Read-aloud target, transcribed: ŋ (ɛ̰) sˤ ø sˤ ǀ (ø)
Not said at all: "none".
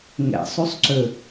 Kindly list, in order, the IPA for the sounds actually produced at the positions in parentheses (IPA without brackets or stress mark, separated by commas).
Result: ɛ̰, ø